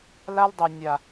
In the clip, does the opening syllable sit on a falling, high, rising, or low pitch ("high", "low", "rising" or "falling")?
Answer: high